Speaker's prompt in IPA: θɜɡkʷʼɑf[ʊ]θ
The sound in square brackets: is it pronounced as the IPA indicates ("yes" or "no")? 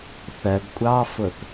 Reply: yes